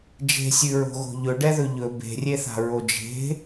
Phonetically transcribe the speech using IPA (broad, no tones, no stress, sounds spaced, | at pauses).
d͡ʒ e̤ sʲ ʉ ɹ o̤ ɣ o̤ ʎ ɵ ɖ ɛ ð ɵ ʎ ɵ b e̤ rʲ e θ a̤ ɹ o d͡ʒ e̤